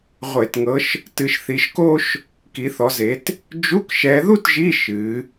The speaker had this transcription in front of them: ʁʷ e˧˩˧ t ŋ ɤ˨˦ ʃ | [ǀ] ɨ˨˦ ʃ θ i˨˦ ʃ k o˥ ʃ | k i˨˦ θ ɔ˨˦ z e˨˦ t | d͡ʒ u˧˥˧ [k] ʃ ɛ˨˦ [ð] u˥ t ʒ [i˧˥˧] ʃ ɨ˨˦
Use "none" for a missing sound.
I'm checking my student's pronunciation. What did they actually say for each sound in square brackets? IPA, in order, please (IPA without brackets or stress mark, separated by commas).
t, k, ð, i˧˥˧